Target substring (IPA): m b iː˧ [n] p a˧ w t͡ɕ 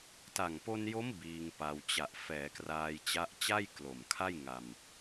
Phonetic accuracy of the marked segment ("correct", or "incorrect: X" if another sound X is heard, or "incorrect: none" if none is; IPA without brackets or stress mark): incorrect: ŋ